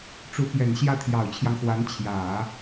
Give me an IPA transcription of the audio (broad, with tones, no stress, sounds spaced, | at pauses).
ʈ͡ʂ u˧˥ p j ɛ˨˩ n ɕ j ä˥ t̪ʰ j ɑ˨˩ ʊ̯ t͡ɕʰ j ɑ˦ ŋ x w a˧˥ n t͡ɕʰ j ä˨˩˦